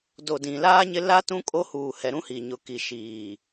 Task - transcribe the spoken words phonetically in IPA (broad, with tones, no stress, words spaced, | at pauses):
do˨dĩ˨laː˦ ɲɪ˦ la˦ tũ˦kʼo˦ huː˨hɛ˨ ɾũ˦hi˨ɲʊ˨ki˨ ʃiː˨